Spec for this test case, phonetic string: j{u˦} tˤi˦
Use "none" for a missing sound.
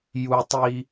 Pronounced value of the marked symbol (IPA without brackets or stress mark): u˦